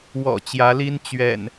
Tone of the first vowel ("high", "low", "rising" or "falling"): low